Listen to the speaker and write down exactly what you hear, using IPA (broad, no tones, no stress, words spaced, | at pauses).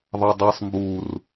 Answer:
ðˤadˤisˤ mbur